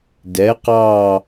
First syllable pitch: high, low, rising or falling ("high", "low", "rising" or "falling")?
rising